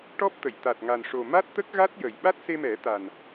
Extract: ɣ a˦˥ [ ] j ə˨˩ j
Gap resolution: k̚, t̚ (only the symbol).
t̚